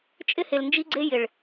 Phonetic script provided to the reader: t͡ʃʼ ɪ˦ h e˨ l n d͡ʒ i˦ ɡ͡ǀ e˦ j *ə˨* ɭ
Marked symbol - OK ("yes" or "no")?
no